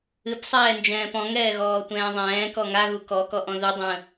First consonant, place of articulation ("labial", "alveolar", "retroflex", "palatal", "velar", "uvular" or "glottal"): labial